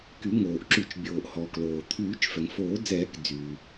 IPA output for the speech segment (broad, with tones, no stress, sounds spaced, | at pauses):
k y˨˩˦ ŋ oː˩ ʔ ǁ y˨˩˦ t͡ʃ bʲ oː˩ ʔ h ɔː˩ k l oː˩ t̪ʰ yː˨˩˦ t͡ʃ f ɛ˩ ŋ f oː˨˩˦ d͡z ɛː˨˩˦ k d͡z yː˩